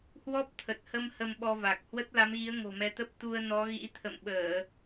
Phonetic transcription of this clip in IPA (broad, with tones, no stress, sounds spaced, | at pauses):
h w ɔ˦˥ p̚ t̪ʰ ə˨˩ t̚ h ə˧ m h ə˧ m ɓ ɔ˧ v a˨˩ k̚ h w ə˦˥ t̚ l a˨˦ m ɣ i˨˦ ə̯ ŋ o̤˨˩ m ɛ˨˦ t̪ ə˦˥ p̚ t̪ u˧ ə̯ n ɔ˨˦ ɣ ḭ˧˥ t̪ʰ ə̰˧˨ m ɓ əː˧˩˨